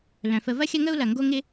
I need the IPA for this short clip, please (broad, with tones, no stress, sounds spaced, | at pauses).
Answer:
l œ̃˨ f ə˧ v ɐ˦ xʲ ɐ˦ ŋ ə˦ u̯ l ɐ˨ ŋ ɡ o˦ ŋ ɪ˦